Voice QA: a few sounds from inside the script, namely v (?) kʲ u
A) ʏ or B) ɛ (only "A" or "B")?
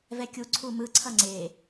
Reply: B